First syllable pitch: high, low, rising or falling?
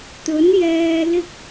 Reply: rising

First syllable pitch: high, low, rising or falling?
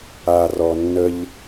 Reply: low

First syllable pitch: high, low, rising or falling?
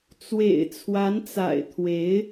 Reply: low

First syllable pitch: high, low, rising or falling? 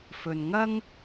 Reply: low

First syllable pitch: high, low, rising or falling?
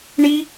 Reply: high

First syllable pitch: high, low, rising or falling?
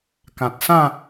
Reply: low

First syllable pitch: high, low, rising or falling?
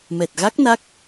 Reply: low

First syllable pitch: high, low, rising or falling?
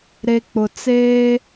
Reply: low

